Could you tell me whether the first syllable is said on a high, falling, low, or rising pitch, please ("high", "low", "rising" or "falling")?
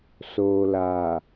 low